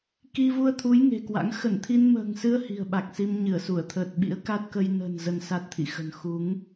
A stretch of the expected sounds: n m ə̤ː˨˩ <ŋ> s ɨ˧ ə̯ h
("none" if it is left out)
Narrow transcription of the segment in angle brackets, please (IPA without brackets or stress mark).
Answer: ŋ